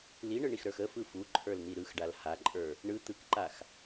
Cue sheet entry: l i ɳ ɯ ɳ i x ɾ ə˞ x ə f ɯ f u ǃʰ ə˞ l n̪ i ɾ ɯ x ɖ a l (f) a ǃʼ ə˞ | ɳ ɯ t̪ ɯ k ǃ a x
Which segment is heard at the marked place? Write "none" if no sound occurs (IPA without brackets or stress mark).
h